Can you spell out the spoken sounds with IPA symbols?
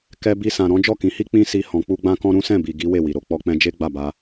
k ɛ˧ b i˧ s ã˨ ɾ ɔ̃˨˦ d͡ʒ ɔ˦˨ k ĩ˨˦ h i˦ k͡p ĩ˦ s i˧ h ɔ̃˨ k͡p u˧ ɡ͡b ã˦ k ɔ̃˦ ɾ ũ˦ s ɛ̃˦˨ b i˨ ɡ i˨˦ w e˦˨ w i˨ ɾ o˨ k͡p ɔ˧ k͡p ɛ̃˧ d͡ʒ e˦ ɡ͡b a˦˨ b a˧

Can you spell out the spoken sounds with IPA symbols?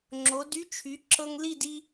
ŋ͡ǁ o˩˥ d y˥ t͡ʃʰ y˩˥ ǁ ɤ˧ ŋ l i˥˩ d i˧

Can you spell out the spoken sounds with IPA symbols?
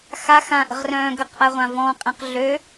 x a x ã ʔ ə̤ ʁ r œ̃ː ɡ ə q ʔ a ʁʷ ã v ɔ̃ qʼ ẽ q ɮ ø

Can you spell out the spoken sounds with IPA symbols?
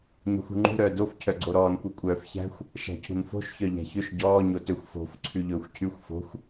ɲ ɔ̤ xʷ ṳ ŋ͡ǃ ṳ ɾ œː d o f cʰ œ ɡ͡ǀ o ɾ ɔː n kʷ ɛ kʷʼ œː f ç æ̤ xʷ | ʃ æ̤ cʰ ṳ n f o̤ ʃ ç œ ʎ æ̤ ç ɵ ʃ ɟ ɔː ɲ o t ɵ xʷ f o̤ f ǀʰ ʉ ʎ ɵː xʷ cʰ ʉ xʷ f o̤ xʷ

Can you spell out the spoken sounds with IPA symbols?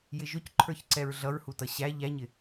j ɪ ʒ ʊ c ǃʰ ə˞ ç ǀ ɛ ɹ ɮ ʌ ɹ h u t ʌ ɕ æ ʎ æ ɲ ɪ

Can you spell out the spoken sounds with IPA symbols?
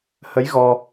h ə˨˦ j ɣ ɔ˧

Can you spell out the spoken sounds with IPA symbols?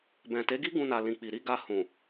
b ɛ̃˨ t e˨˦ ɡ i˦ ɡ ũ˧ n a˨ l ĩ˨ k͡p i˨ ɾ i˧ ɡ a˧ h ũ˨

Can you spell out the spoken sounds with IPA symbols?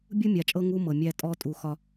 bʲ u˦ mʲ a˨ t͡ʃʼ ɤ˦ ŋ u˦ m ɤ˨ mʲ æ˦ tʼ ɔ˦ tʼ u˨ x ɒ˦

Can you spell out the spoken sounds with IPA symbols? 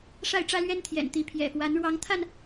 ʂ a˥˨ ɪ̯ ʈ͡ʂ ä˦ l ɥ ɛ˦ n t̪ʰ j ɛ̰˨˩ n t̪ i˨˦ pʰ j ɛ̰˨˩ f w a˨˦ n ɻ w ɑ˨˦ ŋ t̪ʰ a˧ n

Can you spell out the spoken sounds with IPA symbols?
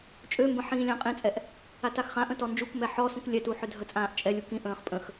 t͡ʃʼ ø m b ə̃ ħ ĩː lʲ ã qʼ ĩ t͡sʼ ɛ ʔ | a t a x χ ã ʔ ə̃ t ɔ n d͡ʒ u k m ɛ ħ ɔ s ũ k lʲ ɛ t u ħ ø dʱ ə t͡sʼ ãː ʔ t͡ʃʼ ɛ lʲ u k ĩ ʔ ə̃ː χ pʼ ə̃ x

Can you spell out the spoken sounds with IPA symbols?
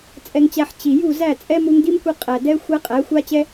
t͡sʼ ɛ˧ ŋ t͡ɕ æ˧ ħ t͡ɕ i˨ j u˦˨ z æ˦˨ t͡sʼ ɛ˦ m u˧ ŋ d i˦ m kʷ i˧ qʼ æ˨ d ɛ˦ xʷ æ˦ qʼ æ˨˦ xʷ a˦ t͡ɕ ɛ˦

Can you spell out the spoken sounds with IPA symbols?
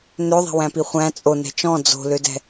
n ø ðˤ ɛ̤ w æ̃ p i χʷ æ̃ t͡sʼ o n ɛ̤ t͡ʃ ɔ̃ d͡z o̤ l ø d ɛ̤

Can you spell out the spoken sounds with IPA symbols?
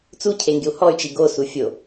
t͡s u cʰ e ŋ ɡ ɪ u̯ h ɔ y̯ t͡ʃ i ɡ o s u fʲ o

